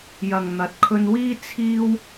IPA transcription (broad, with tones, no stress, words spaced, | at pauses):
jɐ˨ŋn̪ɐ˨˥t̚kʰɵ˧nwiː˥ t͡sʰiː˥w